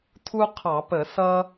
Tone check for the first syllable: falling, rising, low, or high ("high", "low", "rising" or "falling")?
high